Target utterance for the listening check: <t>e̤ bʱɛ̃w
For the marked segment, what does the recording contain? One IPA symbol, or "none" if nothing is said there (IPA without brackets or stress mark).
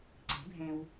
ǀ